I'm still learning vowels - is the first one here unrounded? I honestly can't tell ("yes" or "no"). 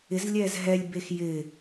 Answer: yes